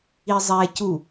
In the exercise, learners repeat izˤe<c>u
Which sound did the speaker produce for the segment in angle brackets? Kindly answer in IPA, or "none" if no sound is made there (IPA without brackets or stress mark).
c